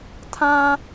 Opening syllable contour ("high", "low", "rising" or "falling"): high